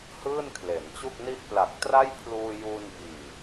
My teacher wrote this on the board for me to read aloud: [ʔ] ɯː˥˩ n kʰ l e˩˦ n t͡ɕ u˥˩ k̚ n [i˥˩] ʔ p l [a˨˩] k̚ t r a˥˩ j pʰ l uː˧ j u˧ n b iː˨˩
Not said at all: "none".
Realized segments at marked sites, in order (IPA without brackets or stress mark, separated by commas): h, i˥˩, a˨˩